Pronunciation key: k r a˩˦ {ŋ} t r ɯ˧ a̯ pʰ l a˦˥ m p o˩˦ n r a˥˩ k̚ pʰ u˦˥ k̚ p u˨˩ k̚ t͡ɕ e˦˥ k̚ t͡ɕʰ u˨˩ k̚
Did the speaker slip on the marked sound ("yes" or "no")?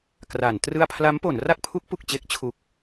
yes